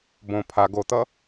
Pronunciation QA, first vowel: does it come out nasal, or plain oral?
nasal